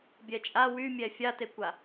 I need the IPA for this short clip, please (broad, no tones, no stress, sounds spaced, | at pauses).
bʲ ɛ t͡ʃʼ a w y mʲ ɛ fʲ a t e kʷ a